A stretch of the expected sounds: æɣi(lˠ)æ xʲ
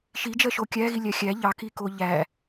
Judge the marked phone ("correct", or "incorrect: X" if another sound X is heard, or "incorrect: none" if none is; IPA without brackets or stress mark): incorrect: lʲ